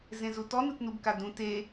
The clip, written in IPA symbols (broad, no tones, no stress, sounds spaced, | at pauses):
z ẽ z u t ɔ n ɯ t n u b k a d ũ t e